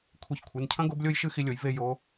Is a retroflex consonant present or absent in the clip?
absent